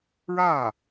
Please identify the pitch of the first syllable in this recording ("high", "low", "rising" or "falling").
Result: falling